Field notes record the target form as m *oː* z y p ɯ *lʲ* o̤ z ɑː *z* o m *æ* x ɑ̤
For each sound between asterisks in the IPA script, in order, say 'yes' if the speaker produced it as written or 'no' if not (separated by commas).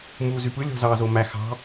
no, yes, yes, yes